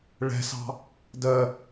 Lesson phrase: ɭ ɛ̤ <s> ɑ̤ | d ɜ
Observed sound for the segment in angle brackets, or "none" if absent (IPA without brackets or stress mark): s